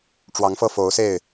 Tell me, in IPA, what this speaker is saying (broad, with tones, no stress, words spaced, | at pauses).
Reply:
ʈ͡ʂwɑ˨˦ŋfɤ˥˨ fo˨˦ʊ̯se˥˨ɪ̯